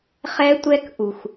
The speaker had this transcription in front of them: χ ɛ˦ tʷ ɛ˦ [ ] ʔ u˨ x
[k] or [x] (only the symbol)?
k